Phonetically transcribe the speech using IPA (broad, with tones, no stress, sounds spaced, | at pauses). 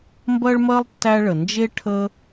m b ɜ˥ ɭ m ɜ˥ lˠ tː æ˦ ɭ ə˩ n d͡ʒ e˥ ʈʰ ə˦